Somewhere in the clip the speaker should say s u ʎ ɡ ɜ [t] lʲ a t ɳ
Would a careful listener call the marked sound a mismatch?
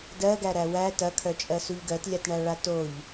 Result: no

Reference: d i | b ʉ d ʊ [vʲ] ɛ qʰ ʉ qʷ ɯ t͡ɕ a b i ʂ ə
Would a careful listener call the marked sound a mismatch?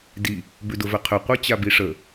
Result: yes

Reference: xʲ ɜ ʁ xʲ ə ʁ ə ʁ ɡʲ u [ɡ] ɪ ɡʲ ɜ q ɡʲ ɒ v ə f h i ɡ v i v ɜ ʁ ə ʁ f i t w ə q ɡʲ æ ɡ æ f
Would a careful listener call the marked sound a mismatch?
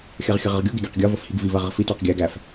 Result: no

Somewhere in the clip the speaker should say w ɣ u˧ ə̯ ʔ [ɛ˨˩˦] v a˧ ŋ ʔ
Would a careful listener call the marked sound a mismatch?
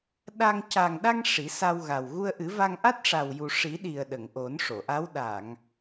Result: yes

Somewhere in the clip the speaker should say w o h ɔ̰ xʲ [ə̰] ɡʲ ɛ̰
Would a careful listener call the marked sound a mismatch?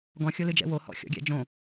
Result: yes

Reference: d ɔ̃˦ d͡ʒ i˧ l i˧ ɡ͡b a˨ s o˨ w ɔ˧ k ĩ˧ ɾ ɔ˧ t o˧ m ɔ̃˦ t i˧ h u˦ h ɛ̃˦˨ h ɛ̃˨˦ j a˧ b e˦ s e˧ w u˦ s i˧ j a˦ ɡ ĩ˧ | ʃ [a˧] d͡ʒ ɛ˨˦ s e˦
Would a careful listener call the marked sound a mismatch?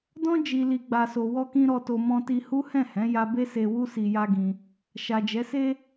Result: yes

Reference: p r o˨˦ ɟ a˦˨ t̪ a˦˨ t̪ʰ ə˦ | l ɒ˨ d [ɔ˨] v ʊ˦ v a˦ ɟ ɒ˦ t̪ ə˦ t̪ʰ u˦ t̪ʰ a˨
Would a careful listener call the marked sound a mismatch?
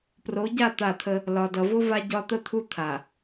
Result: yes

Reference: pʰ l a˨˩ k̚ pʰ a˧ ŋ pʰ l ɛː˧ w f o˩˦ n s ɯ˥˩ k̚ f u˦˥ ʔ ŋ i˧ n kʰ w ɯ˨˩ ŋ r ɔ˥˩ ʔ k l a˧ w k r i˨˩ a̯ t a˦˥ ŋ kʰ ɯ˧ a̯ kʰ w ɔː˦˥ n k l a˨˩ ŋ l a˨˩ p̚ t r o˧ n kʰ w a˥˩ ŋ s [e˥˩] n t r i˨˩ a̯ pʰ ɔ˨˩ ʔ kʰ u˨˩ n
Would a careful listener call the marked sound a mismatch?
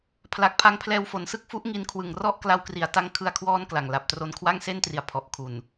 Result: no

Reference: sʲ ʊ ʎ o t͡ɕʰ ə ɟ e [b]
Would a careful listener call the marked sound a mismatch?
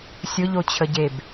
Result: no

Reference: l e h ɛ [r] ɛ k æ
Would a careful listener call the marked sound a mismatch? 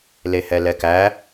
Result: yes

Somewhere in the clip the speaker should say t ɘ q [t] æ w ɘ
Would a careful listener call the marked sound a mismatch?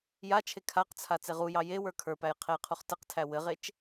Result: yes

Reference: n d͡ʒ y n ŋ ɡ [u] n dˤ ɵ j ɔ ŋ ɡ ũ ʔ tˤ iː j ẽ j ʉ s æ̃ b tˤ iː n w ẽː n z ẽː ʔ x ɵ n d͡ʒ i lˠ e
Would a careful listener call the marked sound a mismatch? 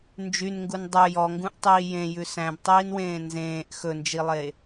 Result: no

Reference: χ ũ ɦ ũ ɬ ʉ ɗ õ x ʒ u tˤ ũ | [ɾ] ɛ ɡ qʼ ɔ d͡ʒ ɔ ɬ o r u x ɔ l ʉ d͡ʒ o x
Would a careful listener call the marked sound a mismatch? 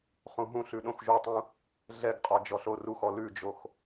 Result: yes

